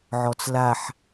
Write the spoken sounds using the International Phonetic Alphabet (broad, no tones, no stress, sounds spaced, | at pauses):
ʕ ɔ t͡s l a ħ